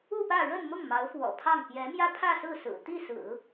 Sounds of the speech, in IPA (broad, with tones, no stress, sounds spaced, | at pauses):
u˥˧ p ä˥˧ ɻ ə˥˧ n m ʊ˥˩ ŋ m ɑ˧˥ ʊ̯ f w ɔ̰˨˩ pʰ ɑ˥˩ ŋ p j ɛ˧˥ m j ä˥ pʰ ä˥˧ s ɹ̩˥˩ s ɹ̩˨˩ t̪ i˥˩ s ɹ̩˨˩˦